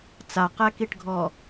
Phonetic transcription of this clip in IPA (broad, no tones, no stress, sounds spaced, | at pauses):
t͡s a q ɛ k i ʈ ɡʱ ɔ